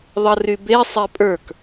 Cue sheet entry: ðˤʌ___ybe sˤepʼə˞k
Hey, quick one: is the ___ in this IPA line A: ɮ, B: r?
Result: B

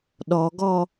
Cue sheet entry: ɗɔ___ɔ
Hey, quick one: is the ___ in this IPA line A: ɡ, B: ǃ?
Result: A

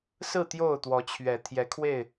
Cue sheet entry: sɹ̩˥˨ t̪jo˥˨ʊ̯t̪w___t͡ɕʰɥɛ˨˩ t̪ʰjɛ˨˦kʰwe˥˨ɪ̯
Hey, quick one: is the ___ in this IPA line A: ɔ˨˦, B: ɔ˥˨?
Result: A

